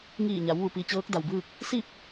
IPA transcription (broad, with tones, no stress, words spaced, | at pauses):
ŋiː˧˩ɲa˩˧w ʋu˩pi˩ t͡ɕɤː˧˥k̚da˩wbɯː˥˨k̚ | si˥˨p̚